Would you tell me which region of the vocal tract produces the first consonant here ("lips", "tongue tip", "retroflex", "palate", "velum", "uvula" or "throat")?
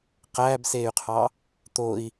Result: uvula